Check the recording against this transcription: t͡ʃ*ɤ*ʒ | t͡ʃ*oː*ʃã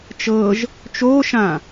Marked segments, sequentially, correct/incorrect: correct, correct

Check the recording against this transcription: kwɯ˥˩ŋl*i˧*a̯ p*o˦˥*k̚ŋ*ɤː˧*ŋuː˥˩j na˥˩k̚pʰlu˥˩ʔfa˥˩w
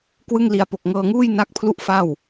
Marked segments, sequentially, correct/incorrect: correct, incorrect, correct

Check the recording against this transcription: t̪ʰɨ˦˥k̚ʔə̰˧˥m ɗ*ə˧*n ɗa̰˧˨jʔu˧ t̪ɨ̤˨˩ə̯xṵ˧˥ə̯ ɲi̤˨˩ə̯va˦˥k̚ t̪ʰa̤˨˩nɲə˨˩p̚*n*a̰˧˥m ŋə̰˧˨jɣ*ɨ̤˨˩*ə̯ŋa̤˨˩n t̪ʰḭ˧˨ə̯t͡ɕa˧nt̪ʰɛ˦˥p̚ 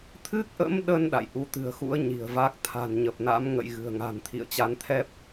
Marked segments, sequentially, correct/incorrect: correct, correct, correct

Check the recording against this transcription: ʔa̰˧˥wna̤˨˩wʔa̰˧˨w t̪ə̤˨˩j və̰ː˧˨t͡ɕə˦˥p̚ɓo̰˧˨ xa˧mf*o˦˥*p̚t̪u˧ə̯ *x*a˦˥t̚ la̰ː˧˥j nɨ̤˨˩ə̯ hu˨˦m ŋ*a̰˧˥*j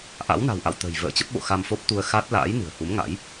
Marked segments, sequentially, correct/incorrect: correct, correct, correct

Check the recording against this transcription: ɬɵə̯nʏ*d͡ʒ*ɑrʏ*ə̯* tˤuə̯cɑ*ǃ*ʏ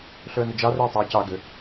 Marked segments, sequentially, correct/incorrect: correct, incorrect, incorrect

